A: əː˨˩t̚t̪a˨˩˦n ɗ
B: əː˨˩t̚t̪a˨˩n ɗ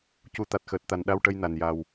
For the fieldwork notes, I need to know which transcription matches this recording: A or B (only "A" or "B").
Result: B